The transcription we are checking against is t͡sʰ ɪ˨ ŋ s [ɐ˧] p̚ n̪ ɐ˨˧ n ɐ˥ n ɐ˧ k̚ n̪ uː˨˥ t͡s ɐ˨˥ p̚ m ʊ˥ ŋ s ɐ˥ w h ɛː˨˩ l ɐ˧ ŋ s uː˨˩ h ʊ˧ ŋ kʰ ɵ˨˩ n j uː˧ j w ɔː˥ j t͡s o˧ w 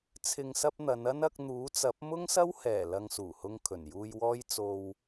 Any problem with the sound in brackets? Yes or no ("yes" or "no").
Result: no